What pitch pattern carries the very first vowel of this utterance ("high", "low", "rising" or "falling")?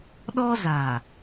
high